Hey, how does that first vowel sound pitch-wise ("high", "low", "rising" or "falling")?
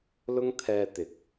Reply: high